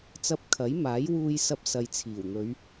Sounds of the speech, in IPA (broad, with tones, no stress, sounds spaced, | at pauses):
t͡s ɐ˧ p̚ kʰ ɐ˨˥ j m aː˨˥ j w uː˧ j s ɐ˧ p̚ s ɐ˨ j t͡sʰ iː˨˩ w n̪ ɵ˨˧ ɥ